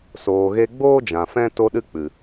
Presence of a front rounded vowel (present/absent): absent